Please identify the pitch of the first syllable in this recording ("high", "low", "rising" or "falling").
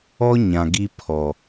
high